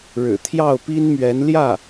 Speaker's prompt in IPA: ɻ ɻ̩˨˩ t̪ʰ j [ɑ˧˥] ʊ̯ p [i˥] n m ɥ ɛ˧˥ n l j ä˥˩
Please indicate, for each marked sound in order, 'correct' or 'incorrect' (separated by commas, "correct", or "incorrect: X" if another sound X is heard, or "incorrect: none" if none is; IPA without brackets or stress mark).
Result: incorrect: ɑ˥˩, correct